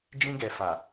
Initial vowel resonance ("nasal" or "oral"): nasal